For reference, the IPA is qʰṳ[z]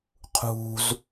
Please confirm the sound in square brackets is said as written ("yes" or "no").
yes